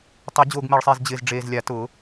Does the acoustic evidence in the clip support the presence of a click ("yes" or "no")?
no